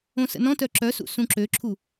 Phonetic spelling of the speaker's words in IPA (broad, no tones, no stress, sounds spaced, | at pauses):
õ s ə̰ n ɔ̃ t œ ǁ œ s ṵ s ũ ǁ ø ǁʰ u